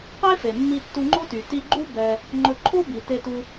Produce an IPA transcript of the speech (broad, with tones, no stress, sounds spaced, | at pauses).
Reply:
q e˦ f e˨ mː i˧ tː u˧ ŋ͡ǃ o˦ t y˨ t i˧ ɡ͡ǃ u˦ b ɛ˧ | ŋ͡ǃ ɵ˧ ǃʰ o˦ b i˨ t e˧ t u˧